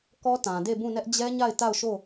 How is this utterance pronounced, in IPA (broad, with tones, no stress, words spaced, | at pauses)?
kɔ˦ tã˨ de˦˨bũ˦˨nɛ˦ʔ d͡ʑɛ˦ɲa˦˨ɪ̯ ta˦˨ʊ̯ ʃo˦˨